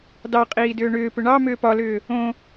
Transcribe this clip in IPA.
d ɑ qʼ iː d ʏː ɳ ʏː p ʏ ɳ ɑ m ʏː p ɒ l ʏː | õ

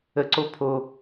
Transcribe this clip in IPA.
ə ǀ o pʰ o

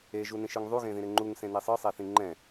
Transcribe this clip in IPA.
e ʒ u n ĩ ʃ ɯ ŋ ðˤ u ɣ ẽ ð ĩ ɾ e ŋ͡ǃ u ŋ s ẽ n e sˤ ɯ sˤ ɛ θ ĩ ŋ͡ǃ ɛ̃

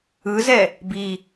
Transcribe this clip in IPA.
ɯ z ɛ | b i

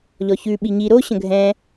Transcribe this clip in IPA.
ʎ ɔ ç ʉ ɓ i ɲ i ɾ o ɕ ə̃ ɡʱ ɛ̃

